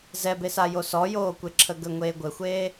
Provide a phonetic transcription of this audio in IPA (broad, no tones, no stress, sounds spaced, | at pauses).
z ɛ b e s a j o s ɔ j oː kʷ e ǁʰ ə ɡ ə ŋʷ eː ɡʷ ɘ xʷ eː